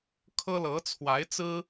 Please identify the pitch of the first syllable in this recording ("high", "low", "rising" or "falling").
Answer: high